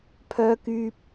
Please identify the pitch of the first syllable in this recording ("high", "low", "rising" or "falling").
high